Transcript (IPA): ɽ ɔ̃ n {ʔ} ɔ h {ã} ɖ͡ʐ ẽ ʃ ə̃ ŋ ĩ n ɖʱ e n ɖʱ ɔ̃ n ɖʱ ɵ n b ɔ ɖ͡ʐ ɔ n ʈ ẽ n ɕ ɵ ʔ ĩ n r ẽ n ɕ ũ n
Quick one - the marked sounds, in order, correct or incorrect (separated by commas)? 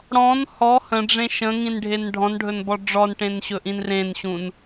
incorrect, incorrect